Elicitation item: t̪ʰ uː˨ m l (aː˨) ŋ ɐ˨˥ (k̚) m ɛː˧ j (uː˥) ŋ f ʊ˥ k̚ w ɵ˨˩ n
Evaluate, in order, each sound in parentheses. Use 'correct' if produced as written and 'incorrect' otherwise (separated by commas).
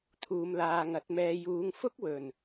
correct, incorrect, incorrect